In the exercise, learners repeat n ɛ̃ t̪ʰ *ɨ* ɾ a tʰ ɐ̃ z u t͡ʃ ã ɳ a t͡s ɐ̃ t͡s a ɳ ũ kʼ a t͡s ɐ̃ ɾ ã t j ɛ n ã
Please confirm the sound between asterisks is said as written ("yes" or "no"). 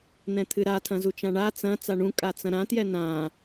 yes